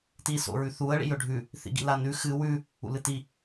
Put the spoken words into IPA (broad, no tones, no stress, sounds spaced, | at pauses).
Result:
t i s o̰ ɹ ʉ θ u ə̯ ɭ ḭ j ɵ ɖʱ ʉ | θ ḭ ɡ ḭ l a n ʉ x ɨ w ʉ | ṵ l ɨ t i